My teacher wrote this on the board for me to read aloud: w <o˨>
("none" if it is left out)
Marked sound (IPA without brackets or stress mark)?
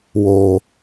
oː˨